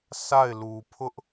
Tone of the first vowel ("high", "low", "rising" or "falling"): falling